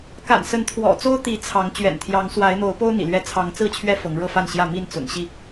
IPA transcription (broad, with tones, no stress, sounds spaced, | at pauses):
k a̰˨˩ n s ə˨˦ n t̪ʰ w ɔ̰˨˩ t͡s o˦ ʊ̯ t̪ i˨˦ t͡sʰ ɑ˨˦ ŋ t͡ɕ ɥ ɛ̰˨˩ n t̪ʰ j ɑ˨˦ ŋ s w a˨˦ ɪ̯ n̪ o˨˦ ʊ̯ p o˦ ʊ̯ n̪ ḭ˨˩ l ɥ ɛ˦ t͡sʰ ɑ˨˦ ŋ t͡s ɹ̩˥˨ t͡ɕʰ ɥ ɛ˦ f ɤ˨˦ ŋ ɻ ɤ˥˨ f a˥˨ n ɕ j ä˥˨ m i˥˨ n t͡s ʊ̰˨˩ ŋ ɕ i˥˨